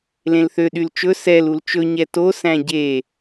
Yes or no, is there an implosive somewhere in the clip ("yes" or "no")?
yes